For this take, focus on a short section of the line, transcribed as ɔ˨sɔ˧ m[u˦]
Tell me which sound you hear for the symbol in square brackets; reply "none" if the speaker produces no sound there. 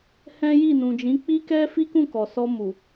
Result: u˨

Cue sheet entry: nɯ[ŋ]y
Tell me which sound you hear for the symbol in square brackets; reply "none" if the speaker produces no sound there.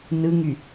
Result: ŋ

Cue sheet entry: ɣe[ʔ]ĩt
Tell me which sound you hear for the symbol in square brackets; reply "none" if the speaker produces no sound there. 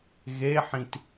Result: ħ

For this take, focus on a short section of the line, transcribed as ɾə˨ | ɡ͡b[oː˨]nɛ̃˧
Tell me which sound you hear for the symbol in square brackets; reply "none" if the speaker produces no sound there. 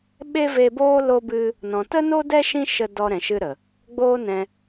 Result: oː˦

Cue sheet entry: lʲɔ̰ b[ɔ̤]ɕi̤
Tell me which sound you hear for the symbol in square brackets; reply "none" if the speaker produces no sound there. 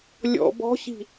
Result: ɔ̤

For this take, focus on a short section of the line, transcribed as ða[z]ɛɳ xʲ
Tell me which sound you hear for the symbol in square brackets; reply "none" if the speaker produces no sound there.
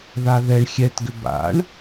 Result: ð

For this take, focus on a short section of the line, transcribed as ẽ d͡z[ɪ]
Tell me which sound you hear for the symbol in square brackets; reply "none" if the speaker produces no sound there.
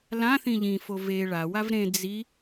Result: i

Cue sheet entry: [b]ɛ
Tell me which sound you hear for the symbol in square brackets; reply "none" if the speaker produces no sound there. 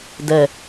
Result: d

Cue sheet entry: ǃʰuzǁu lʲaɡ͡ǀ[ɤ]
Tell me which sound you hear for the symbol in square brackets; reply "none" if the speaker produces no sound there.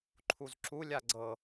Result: ɤ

